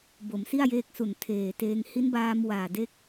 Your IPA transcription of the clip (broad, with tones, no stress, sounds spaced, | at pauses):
b o˩˦ m s i˥˩ a̯ j eː˦˥ k̚ s u˨˩ n tʰ eː˨˩ t eː˧ ŋ h i˦˥ n b aː˧ m w aː˨˩ d e˦˥ k̚